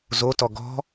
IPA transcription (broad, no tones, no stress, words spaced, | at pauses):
zotɔ ɡɔ̤